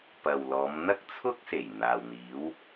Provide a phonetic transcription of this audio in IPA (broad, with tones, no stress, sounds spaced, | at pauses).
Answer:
p ɐ˨ w l ɔː˨˧ m n̪ ɐ˥ k̚ t͡sʰ ʊ˥ k̚ s e˨˩ j n̪ aː˨ w n̪ iː˨˥ w